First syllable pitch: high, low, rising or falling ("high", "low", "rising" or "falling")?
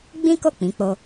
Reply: high